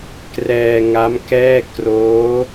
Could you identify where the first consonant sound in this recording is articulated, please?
velar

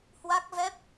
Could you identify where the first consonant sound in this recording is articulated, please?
glottal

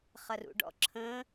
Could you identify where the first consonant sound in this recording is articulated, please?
uvular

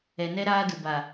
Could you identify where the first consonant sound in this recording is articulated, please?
alveolar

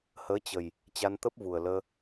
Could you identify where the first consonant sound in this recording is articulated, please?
glottal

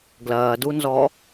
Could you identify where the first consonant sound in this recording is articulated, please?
velar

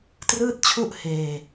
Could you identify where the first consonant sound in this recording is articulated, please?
alveolar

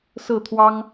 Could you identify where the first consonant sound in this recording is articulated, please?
alveolar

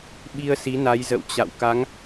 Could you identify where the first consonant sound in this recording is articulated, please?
labial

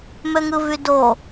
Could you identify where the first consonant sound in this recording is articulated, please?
labial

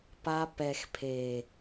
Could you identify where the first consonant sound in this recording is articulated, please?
labial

